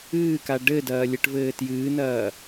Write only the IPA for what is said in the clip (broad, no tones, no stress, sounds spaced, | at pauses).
ɨː k a ɖ ɘ d ɐː lʲ ɛ ʈ v ɘː t j ɨː n ɐː